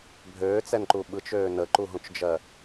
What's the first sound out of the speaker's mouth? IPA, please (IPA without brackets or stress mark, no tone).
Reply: bʱ